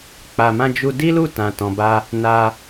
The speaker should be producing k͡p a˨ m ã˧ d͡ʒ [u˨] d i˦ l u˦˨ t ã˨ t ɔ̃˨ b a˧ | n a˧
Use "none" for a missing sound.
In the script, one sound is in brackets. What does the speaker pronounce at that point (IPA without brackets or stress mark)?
u˧